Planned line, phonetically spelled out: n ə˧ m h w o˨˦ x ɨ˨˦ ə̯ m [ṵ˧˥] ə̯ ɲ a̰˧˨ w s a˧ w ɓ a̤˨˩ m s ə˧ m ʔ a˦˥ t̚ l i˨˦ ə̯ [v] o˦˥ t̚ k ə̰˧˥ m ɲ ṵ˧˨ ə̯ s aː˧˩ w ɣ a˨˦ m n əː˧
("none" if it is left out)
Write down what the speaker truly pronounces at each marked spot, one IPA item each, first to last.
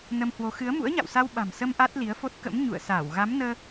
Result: ṵ˧˥, f

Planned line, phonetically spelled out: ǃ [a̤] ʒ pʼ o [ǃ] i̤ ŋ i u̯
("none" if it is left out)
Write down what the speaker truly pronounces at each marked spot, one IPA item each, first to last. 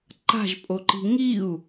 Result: a̤, ǃ

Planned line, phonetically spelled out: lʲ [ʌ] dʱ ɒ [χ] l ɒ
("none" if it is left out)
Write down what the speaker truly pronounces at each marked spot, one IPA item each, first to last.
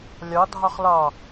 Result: ɒ, χ

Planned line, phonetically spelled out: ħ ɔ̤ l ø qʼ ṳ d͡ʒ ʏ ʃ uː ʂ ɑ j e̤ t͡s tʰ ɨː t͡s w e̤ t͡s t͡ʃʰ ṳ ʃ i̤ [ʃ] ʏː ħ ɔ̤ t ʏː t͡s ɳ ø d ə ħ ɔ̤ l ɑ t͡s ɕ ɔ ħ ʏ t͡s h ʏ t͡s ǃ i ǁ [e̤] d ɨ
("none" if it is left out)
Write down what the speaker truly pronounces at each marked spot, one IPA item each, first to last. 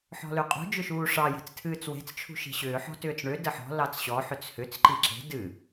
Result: ɕ, e̤

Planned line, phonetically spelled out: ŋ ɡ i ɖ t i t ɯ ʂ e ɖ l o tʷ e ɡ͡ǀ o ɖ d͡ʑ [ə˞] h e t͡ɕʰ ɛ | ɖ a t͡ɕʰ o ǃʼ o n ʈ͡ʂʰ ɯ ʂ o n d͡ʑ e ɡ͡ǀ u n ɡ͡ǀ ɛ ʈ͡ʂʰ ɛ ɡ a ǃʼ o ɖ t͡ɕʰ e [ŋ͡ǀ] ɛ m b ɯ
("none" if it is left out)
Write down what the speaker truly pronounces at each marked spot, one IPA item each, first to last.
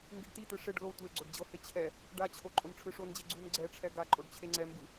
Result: ɤ, ŋ͡ǀ

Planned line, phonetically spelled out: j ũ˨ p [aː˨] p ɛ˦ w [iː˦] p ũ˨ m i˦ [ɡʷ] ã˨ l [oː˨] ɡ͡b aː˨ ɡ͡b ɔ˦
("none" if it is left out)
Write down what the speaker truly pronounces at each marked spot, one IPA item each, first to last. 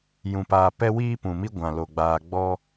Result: aː˨, iː˦, ɡʷ, o˨

